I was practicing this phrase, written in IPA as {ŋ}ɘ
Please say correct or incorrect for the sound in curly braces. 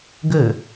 incorrect